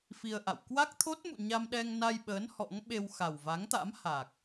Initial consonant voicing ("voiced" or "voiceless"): voiceless